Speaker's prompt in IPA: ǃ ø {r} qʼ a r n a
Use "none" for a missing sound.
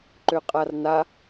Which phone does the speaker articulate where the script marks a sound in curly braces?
none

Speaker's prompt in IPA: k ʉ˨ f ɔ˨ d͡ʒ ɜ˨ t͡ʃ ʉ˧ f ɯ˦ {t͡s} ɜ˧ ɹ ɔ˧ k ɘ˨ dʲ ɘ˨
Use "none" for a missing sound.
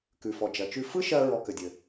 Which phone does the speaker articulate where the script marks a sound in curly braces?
ʃ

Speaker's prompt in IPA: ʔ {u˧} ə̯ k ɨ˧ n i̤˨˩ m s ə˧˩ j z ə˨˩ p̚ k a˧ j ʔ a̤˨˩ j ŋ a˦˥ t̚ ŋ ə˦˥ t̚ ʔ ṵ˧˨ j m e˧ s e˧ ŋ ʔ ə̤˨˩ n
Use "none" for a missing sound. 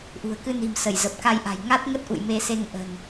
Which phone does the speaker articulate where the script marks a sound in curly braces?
ṳ˨˩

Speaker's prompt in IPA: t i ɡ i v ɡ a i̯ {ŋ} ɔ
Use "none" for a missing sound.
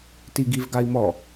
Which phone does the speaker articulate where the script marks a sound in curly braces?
m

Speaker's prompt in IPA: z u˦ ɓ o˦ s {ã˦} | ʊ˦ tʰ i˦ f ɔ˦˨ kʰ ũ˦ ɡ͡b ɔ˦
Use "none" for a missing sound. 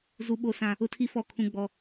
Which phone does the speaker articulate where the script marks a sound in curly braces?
ã˦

